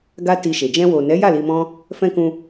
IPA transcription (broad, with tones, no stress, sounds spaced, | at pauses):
ɡ a˦ t i˧ ʃ e˨ d͡ʒ ɛ̃˧ w o˨ n ɛ˨˦ j a˦˨ l i˧ m ɔ̃˦ | f ɛ̃˦ k ũ˧